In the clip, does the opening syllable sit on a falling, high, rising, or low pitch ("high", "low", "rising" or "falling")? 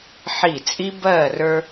falling